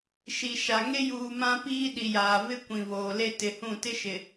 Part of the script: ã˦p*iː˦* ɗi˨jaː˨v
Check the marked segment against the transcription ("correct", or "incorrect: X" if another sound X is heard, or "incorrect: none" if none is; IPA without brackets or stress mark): correct